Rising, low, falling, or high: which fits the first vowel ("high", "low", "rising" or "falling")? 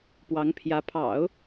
rising